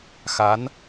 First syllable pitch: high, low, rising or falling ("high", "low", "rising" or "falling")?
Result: rising